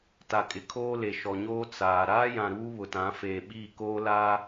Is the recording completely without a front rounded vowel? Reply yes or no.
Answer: yes